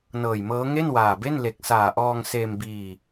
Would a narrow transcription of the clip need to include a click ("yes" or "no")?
no